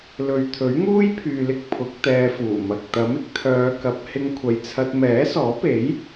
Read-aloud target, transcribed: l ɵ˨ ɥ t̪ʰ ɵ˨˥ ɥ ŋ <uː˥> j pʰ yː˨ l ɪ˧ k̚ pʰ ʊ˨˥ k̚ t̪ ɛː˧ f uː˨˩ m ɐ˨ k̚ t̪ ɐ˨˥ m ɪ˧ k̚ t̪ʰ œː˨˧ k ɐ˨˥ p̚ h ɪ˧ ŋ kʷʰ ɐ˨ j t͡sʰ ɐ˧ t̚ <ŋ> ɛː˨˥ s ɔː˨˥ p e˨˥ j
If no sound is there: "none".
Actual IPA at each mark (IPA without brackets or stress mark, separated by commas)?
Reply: uː˥, m